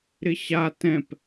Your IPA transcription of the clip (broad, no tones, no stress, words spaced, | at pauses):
ɾɪɕa tɛ̃p